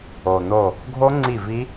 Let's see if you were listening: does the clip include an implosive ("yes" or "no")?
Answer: no